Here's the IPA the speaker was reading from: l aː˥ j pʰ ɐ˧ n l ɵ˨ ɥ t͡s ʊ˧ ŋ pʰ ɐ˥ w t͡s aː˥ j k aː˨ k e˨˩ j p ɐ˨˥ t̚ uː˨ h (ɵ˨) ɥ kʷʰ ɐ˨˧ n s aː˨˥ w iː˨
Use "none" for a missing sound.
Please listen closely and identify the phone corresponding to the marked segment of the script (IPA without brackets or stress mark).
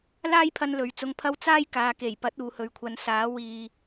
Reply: ɵ˨